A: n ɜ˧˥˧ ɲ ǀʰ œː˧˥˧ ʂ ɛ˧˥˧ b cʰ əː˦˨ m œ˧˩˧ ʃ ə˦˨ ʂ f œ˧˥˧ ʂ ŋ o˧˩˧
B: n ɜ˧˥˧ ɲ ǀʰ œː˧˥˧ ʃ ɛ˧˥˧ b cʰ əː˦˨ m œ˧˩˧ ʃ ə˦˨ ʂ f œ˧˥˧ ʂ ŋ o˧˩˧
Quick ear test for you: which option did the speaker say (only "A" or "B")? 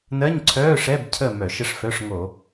A